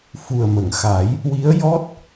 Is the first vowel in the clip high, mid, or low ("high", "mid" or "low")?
high